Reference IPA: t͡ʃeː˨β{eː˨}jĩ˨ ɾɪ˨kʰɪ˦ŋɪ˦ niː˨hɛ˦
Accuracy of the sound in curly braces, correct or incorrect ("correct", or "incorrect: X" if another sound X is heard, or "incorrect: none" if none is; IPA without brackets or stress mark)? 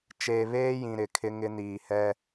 incorrect: eː˦